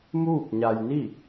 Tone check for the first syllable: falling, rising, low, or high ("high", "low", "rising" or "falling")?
falling